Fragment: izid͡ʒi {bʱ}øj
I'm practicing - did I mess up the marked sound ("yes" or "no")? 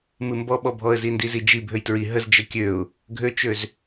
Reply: no